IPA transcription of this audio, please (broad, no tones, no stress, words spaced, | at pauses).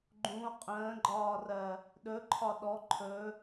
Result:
ɡ͡ǃũo̯ qʼə̃ːɡ͡ǃɒːrɜ | ɗɵ ǃʰɒɗɔ ǃʰɵ